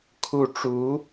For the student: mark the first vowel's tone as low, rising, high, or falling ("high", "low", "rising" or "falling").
falling